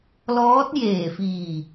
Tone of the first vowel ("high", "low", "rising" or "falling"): rising